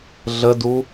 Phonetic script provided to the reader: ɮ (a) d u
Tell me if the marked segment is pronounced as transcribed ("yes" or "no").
no